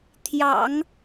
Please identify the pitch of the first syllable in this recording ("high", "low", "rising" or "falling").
low